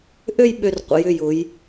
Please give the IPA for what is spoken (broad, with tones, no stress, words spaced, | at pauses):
ʔø˥˧j ɓø˧r qʷə̰˩˧jʏ˧˩jʊ˩˧j